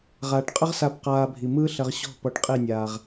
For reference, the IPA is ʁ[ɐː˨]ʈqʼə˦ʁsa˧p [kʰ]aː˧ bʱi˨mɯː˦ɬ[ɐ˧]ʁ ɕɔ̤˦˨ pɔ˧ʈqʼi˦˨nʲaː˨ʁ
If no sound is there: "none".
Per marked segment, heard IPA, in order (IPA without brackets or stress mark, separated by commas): aː˨, q, ɐ˧